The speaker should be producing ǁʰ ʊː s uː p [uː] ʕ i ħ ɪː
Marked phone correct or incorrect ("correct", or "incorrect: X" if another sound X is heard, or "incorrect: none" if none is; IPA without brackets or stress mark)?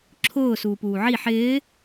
correct